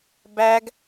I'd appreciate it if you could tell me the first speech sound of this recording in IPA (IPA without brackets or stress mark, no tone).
b